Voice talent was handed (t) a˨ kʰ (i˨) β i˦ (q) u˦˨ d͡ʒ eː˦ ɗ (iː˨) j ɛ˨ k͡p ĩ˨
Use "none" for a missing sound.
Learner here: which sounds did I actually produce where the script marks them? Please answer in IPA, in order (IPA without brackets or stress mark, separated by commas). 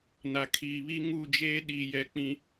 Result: n, iː˨, ŋ, iː˨